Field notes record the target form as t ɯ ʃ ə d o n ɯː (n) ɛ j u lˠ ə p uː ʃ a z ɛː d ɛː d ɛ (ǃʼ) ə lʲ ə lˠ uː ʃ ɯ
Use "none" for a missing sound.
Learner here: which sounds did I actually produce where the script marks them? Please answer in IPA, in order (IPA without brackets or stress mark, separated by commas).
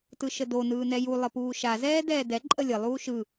n, ǃʼ